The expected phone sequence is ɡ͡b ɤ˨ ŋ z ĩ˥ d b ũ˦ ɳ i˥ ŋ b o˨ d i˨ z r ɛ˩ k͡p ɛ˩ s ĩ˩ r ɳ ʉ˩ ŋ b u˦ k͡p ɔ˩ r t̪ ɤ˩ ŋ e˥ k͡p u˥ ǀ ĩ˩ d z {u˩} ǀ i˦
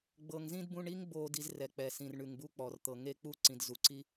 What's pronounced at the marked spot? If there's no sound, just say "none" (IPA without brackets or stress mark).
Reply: u˩